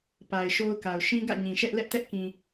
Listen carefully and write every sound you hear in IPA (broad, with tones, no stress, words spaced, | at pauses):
pa˨ɪ̯ʃo˦ʊ̯ka˨ʊ̯ ʃĩ˦ɡä̰˦˨ ɲĩ˨ʃɛ˦ʔlɛ˦ʔtɛ˦ʔ kĩ˨